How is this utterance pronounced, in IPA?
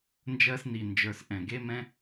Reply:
n d͡ʒ ɜ˧ s n i˨ n d͡ʒ ə˞˨ s ʔ ɛ̃˨ ɡ e˧ m ɛ̃˧

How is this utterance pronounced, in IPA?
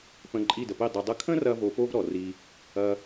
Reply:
p ə̃˧ ǃʼ i˦˨ d ə˨ p i˦˨ dˤ ə˨ dˤ ə˧ kʰ ə̃˦ r ɐ˦ v o˧ p o˦ v ɾ ɔ˨ r i˧ | ɐ˧

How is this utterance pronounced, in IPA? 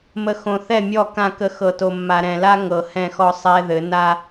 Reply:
m ə˨ x õ˨ θ ɛ˦˨ mʲ ɔ˦˨ k ã˦˨ k ə˦ x ɤ˨ t o˨ mː a˨ ɾ ɛ̃˨ l a˦ ŋ ɤ˨ h ɛ̃˦˨ x ɔ˦ sˤ ɛ˦ ð ɘ˨˦ n a˦

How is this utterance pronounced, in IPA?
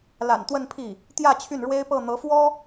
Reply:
l a̰˨˩ n t̪ w ə˥˧ n pʰ i˥˩ | t̪ j ä˥˧ t͡ɕʰ y˥˩ n ɻ w e˥ ɪ̯ p ɤ˥˩ n̪ ɤ˧˥ f w ɔ˥

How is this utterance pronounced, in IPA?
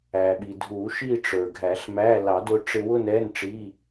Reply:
æ˩ ɓ i˩ dʱ u˨˩˦ ʃ i˥˧ ʈ͡ʂ ə˞˩ ɡʱ æ˨˩˦ ɬ m æ˧˥˧ l ɑ˨˩˦ d ʊ˧ ʈ͡ʂ ɪ˧ w ʊ˥˧ n ɛ˧˥˧ n ʈ͡ʂ i˧˥˧

